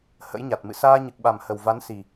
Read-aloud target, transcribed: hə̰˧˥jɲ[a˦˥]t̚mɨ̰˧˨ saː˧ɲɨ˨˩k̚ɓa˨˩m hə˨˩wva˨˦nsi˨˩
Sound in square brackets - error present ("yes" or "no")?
yes